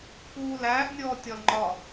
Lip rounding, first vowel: rounded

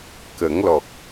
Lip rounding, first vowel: unrounded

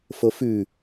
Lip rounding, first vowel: rounded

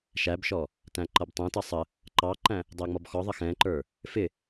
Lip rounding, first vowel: unrounded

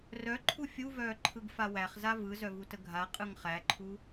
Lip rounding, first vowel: rounded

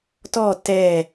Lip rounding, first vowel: rounded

